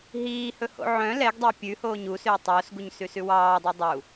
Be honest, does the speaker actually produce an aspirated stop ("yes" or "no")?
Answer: no